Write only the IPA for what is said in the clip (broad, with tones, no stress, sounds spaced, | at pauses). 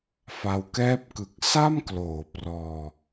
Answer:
f a˧ w k ɛː˥˩ p̚ k ɯ˨˩ k̚ s a˥˩ m k l oː˩˦ p r ɔː˧